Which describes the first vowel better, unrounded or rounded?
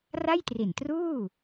unrounded